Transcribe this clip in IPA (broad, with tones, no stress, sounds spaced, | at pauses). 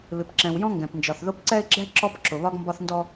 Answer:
β ɪ˨ p ǁ ɛ̃˨ w j ɔ̃˦ ŋ ɡ ɛ̃˨ p n d͡ʒ ɒ˨ θ ð ʊ˦ p ǀ ɛ˦ ɪ̯ ɡ͡ǁ ɛ˦ ǁ ɔ˦ p ǁ ʊ˨ β ɒ˦ ɡ m b ɒ˦ θ n d ɔ˦